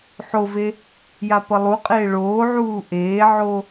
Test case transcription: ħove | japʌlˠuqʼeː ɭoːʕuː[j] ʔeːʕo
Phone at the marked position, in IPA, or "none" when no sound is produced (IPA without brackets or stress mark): none